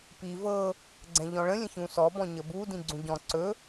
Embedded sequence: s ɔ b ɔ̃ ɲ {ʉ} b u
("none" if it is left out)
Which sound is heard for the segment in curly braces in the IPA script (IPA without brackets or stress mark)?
ə